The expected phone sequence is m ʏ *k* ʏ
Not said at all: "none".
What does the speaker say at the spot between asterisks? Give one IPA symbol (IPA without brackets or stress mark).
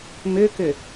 k